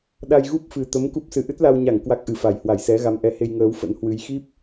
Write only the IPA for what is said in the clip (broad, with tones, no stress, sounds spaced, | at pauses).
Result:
ɗ a˧ j ɣ u˦˥ p̚ f ɨ˨˩ t̪ ə˨˦ m k u˦˥ p̚ s ɨ˨˦ ʔ ɨ˦˥ t̚ l a˧ w ɲ a˧˩ ŋ k w a˦˥ k̚ ʔ ɨ˨˩ f a˧˩ j h w a˧˩ j s ɛ˨˦ ɣ a˨˦ m ʔ ɛ˨˦ h e˧ j ŋ əː˨˦ w f ə̰˧˥ n h w ɨ˨˦ j x i˦˥ p̚